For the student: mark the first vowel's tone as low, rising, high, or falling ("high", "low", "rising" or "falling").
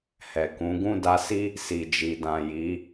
low